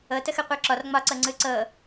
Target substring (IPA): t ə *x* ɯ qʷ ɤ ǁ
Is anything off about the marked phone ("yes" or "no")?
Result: no